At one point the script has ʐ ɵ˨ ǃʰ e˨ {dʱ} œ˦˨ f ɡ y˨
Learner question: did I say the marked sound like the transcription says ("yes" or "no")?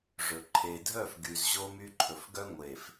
yes